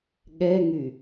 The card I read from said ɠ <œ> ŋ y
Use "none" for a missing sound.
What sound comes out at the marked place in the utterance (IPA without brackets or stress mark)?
ɛ